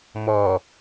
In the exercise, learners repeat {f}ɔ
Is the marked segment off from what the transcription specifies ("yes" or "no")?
yes